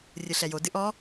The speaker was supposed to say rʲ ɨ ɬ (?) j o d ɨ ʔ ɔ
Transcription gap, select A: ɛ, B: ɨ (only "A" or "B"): A